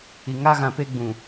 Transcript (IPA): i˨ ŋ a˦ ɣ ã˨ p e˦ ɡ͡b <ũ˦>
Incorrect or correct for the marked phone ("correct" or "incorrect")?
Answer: incorrect